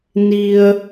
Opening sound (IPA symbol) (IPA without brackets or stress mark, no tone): n